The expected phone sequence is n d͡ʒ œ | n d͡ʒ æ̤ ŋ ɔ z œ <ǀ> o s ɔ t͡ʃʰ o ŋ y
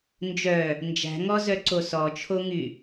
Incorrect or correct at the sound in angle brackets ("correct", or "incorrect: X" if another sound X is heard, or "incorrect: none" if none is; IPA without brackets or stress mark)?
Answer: correct